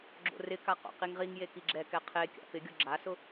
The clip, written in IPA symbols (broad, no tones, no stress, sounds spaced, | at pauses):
ɡ͡ǁ o̰ r ɪ k a q o̰ q i ŋ ʁ i ŋ j e k i ɡ͡ǁ ɛ k ɛ qʰ e kʲ a̰ p ɪ ɡʲ ʊ ɡ͡ǁ a s ʊ